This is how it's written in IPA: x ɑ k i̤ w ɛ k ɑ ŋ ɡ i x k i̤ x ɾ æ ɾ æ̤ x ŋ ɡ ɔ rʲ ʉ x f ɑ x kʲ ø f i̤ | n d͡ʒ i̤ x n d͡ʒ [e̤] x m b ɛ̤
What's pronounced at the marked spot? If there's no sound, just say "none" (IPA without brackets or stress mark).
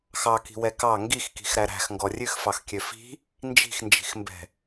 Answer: i̤